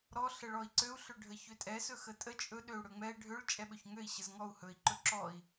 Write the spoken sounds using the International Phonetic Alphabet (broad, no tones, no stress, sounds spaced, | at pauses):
ɾ ɔ ɬ ə ɭ ɔ i̯ ǀ ø u̯ ɬ ø ɖʱ ə ç ø tʼ ɛ s ɵ x ə tʼ ə t͡ʃʼ ɵ ɗ ø u̯ ɽ ɵ ŋ͡m ɛ ɖʱ ø ɭ t͡ʃʼ ɛ ɓ ɵ ç ŋ ø i̯ ɕ ə z ŋ ɔ u̯ h ɵ i̯ ǃ ɵ ǁ ɔ i̯